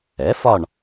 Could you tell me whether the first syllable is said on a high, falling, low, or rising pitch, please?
rising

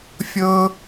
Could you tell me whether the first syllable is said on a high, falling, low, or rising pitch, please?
high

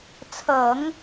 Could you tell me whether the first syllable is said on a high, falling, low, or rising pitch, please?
low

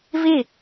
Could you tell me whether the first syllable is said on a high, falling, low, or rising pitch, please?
falling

